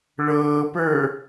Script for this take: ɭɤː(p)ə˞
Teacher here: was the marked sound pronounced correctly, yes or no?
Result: yes